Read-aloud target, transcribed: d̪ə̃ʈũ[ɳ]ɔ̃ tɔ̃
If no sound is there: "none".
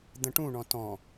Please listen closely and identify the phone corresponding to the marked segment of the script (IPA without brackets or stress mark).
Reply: ɳ